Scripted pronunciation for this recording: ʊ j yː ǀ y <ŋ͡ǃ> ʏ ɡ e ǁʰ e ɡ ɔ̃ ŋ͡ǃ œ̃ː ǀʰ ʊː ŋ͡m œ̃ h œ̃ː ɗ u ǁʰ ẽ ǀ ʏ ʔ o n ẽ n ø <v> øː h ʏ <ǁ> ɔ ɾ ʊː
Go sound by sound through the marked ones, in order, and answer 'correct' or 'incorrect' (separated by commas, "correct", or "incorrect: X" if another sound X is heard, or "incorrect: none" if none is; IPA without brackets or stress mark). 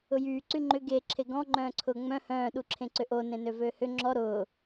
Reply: correct, correct, incorrect: ŋ͡ǁ